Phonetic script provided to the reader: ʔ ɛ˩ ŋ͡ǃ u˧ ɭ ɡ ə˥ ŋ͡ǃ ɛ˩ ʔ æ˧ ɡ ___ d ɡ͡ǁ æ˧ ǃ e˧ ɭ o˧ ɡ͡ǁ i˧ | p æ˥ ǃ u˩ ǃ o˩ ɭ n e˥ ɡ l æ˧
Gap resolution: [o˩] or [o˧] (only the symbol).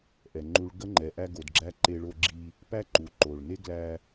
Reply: o˩